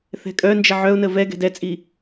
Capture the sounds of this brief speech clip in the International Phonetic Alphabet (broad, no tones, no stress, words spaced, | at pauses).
θɛ̤kʼœnd͡ʒɪ ʕœʊ̯nə vɛ ɡɛ̤dɛt͡sʼi